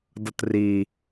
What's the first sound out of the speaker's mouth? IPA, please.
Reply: d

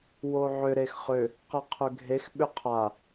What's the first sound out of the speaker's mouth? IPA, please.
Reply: w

